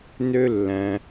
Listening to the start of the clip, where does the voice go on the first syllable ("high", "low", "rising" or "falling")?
high